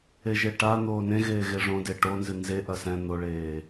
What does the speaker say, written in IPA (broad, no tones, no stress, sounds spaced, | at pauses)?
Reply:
e ʒ e ʈ a n̪ oː n ẽ ɣ eː ɣ e ʐ õ d e ʈ o n z ɨ n z e ʔ ɐ s ɛ̃ n̪ o ɭ eː